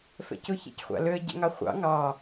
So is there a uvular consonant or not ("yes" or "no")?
yes